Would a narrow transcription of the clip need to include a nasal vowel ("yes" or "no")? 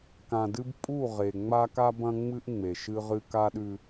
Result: yes